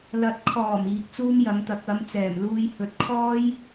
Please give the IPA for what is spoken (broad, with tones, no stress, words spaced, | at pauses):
lɐ˨t̚kʰɔː˨˩m iː˨˥k̚t͡suː˥mjɐ˨˥ŋt̪ɐ˨˥k̚ ɐ˨˥m t͡sɛː˨˩mluː˧jhɵ˨˥t̚kʰɔː˥j